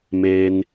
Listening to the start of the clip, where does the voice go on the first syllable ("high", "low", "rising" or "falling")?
low